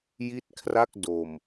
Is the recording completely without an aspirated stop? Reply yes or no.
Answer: no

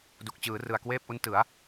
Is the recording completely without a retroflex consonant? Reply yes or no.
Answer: yes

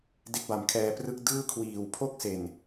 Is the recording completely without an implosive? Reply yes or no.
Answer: yes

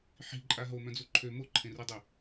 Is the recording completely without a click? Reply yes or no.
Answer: no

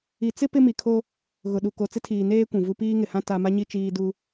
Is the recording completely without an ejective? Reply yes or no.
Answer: yes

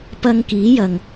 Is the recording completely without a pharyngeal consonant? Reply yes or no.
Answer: yes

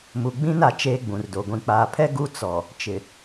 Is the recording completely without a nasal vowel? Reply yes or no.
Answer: no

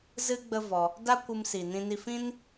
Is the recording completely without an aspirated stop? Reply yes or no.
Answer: yes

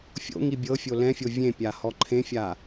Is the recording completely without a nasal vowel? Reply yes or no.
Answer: no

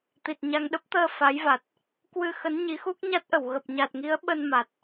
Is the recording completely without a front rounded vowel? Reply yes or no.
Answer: yes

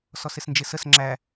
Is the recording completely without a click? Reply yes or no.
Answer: no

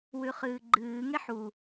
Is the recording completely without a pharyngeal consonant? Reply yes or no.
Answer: no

